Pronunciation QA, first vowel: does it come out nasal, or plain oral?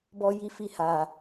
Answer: oral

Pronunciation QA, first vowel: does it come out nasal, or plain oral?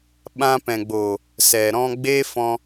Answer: nasal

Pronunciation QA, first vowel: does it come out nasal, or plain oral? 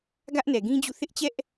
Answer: oral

